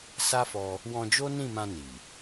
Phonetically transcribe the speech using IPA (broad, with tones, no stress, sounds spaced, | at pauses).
s a˦ f ɔ˧ | w ɔ̃˧ d͡ʒ o˦ n ĩ˦˨ m ã˧ n i˨